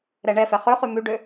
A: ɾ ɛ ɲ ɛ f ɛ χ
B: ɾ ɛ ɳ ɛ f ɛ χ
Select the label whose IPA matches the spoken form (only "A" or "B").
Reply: B